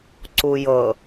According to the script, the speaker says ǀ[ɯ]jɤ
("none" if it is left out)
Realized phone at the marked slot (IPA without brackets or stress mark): u